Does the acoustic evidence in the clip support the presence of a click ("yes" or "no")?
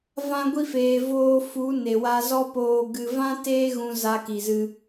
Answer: no